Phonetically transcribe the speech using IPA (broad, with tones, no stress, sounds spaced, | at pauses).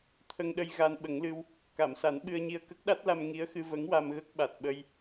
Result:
t̪ʰ ə˧ ŋ ɗ ə˧ j ɣ a˧ n ɓ ə˨˩˦ ŋ l ɨ˧ w | k a˨˩˨ m s a˨˩˦ n ɓ ɨ˧ ə̯ ɲ i˧ ə̯ k ə˦˥ k̚ ɗ a˦˥ t̚ l a˧ m ŋ i˧˥ ə̯ x ɨ˧ v ə˧˥ ŋ w a˧ m ɣ ə˦˥ k̚ ɓ a˨˩ t̚ ɓ ə˧ j